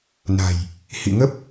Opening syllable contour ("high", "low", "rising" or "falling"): low